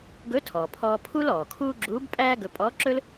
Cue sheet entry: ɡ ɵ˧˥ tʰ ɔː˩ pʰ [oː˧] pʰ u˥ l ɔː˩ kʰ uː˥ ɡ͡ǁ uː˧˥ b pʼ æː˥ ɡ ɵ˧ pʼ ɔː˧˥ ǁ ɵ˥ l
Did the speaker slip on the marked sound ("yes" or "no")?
yes